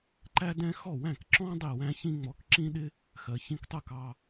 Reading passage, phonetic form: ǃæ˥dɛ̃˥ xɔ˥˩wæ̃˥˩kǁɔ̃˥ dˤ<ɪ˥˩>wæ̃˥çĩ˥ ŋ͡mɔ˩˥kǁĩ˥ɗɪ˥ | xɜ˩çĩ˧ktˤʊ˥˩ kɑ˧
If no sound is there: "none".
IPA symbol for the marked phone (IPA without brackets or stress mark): i˥˩